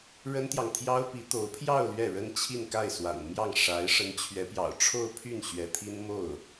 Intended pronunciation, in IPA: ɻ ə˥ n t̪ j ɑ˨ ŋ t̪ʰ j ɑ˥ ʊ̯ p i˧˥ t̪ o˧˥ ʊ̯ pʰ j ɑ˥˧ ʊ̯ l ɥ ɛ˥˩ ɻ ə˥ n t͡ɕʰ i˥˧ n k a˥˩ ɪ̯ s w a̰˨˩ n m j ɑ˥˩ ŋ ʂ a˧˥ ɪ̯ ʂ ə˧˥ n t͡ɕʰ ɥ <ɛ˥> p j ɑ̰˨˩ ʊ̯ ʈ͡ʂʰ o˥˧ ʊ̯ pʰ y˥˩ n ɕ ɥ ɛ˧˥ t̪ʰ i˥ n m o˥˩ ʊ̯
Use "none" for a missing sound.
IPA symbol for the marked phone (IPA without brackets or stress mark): ɛ˧˥